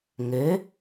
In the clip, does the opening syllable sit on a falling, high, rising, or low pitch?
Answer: rising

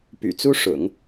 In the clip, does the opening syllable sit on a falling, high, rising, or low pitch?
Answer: low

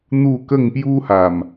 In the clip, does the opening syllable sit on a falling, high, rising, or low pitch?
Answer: falling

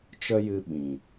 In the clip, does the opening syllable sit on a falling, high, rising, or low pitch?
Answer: high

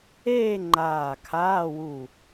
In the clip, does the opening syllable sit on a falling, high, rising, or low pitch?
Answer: falling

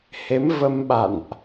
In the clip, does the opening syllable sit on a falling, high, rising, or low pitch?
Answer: rising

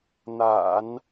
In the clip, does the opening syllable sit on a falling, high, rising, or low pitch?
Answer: low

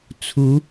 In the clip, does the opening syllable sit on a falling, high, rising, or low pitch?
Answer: rising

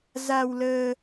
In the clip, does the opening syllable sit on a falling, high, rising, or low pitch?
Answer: low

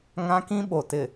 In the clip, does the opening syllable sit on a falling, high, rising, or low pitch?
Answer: high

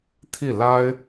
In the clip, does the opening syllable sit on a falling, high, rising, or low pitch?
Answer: falling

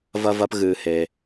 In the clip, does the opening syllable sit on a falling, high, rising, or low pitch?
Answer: high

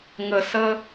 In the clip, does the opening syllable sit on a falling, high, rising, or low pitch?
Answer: low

